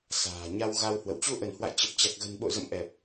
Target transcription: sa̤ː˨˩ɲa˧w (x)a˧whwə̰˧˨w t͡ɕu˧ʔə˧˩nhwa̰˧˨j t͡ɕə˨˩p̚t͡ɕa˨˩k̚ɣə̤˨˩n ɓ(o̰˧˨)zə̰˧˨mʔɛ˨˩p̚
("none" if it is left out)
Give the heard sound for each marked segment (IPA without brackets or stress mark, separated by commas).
ɣ, o̰˧˨